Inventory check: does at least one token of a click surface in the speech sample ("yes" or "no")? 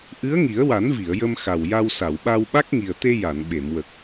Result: no